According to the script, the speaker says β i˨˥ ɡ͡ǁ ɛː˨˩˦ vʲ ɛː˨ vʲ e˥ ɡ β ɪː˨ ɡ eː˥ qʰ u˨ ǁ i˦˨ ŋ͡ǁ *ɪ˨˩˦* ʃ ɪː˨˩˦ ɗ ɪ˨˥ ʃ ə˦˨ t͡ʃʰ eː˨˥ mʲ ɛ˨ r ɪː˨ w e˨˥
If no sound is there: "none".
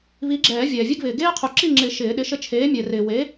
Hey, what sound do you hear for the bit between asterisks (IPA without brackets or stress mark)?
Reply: ɪ˨˩˦